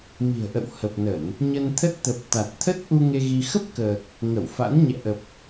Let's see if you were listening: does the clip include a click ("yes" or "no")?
no